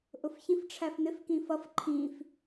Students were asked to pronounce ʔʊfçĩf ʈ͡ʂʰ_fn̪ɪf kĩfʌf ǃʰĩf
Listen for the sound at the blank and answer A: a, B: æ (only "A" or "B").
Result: B